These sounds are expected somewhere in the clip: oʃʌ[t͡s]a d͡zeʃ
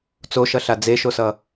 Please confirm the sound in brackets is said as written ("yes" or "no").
no